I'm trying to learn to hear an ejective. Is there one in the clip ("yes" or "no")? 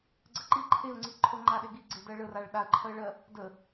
no